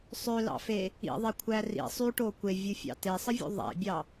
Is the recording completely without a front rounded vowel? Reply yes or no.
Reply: no